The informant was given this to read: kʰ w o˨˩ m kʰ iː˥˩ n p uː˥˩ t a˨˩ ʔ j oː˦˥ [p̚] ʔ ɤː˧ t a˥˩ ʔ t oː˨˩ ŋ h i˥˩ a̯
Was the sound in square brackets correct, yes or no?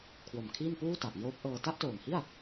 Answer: yes